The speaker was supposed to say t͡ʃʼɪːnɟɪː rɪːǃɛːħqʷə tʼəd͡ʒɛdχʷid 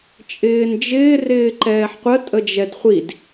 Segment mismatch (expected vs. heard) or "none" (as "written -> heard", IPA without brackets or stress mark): ɟ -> d͡ʒ